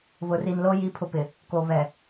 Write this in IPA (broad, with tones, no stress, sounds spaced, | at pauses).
β ʊ˨ r i˨ n l oː˦ j i˦ pʰ ʊ˦ p ɪ˨ | k o˨ β ɛ˨